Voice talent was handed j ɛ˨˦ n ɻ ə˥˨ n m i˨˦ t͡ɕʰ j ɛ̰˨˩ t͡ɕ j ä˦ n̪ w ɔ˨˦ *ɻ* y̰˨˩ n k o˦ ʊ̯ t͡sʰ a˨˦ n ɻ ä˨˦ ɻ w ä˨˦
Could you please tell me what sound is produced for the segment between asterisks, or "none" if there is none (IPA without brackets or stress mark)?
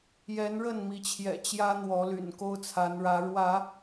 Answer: l